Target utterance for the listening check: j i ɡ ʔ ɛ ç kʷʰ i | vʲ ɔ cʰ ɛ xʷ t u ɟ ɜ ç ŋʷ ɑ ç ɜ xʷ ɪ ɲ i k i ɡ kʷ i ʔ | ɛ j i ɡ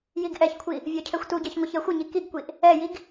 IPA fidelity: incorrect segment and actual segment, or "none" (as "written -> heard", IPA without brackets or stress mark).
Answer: none